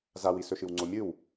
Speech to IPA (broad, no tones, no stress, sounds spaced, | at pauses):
z a w i s ɵ ʃ ɨ w ŋ͡ǀ o mʲ ɨ w